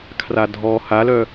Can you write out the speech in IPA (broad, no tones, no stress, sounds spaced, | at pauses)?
kʰ r a dʱ ɔ h a l œ